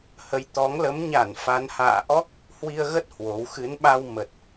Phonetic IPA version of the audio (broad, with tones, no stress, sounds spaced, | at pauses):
h ə˨˦ j t̪ ɔ˨˦ ŋ l ə˨˦ m ɲ a˧˩ n f a˨˦ n h a̰ː˧˨ ʔ ɔ˦˥ k̚ | h w i˧ ə̯ ɣ ə˦˥ t̚ h w o˨˦ w x ɨ˨˦ n ɓ a˧ w m ə˨˩ t̚